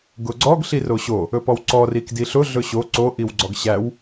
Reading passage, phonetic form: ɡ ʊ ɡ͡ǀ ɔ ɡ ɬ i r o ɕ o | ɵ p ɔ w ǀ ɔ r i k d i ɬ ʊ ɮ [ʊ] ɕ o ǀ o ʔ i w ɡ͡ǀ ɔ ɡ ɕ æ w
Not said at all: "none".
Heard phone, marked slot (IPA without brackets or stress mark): ɵ